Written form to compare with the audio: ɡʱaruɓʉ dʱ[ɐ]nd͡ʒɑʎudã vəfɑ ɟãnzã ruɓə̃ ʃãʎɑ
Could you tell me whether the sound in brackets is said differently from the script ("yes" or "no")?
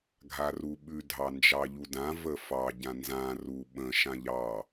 yes